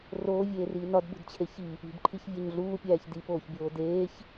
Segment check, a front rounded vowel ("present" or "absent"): absent